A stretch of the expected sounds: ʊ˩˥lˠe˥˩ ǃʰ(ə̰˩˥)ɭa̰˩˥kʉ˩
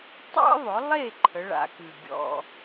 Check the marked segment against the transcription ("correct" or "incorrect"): incorrect